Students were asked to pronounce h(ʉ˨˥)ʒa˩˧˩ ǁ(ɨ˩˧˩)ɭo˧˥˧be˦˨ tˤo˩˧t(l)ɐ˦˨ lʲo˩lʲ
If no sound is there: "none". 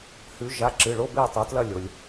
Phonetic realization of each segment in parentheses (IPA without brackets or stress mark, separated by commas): ʉ˩˧, ɨ˩˧˩, l